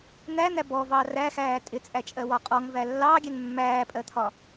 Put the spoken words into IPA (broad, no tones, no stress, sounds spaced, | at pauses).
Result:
n̪ æ n̪ æ b ɔ v ɑ r æ x æː tʼ ɪ t͡sʼ æ t͡ʃʼ ɜ w ɒ qʼ ɔ ŋ v æ lː ɑ ɡʲ ɛ ŋ mː æː pʼ ɜ t̪ʰ ɒ